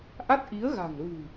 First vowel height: low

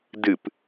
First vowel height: high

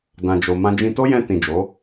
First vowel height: low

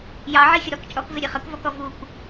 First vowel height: low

